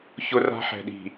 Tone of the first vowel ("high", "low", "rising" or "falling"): high